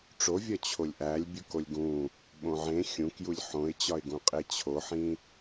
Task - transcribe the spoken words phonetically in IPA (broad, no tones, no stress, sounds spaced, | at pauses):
ʈ͡ʂ o vʲ ɒ t͡ɕʰ o lʲ ʔ æ lʲ bʲ u k o lʲ ɡ ũ | ɓ õ ʕ ẽ xʲ ũ k j u lʲ ħ õ ɪ̯ t͡ɕ ɒ ɪ̯ ɡ ũ qʼ e t͡ɕʰ o ħ ĩ